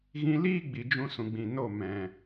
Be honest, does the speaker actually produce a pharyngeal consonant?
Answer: no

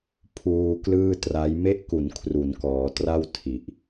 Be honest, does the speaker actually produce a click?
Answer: no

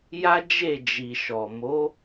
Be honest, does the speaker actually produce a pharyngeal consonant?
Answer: no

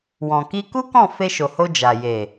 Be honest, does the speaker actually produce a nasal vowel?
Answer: yes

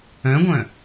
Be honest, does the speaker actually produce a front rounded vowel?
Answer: yes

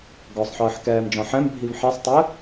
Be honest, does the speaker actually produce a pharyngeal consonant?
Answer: yes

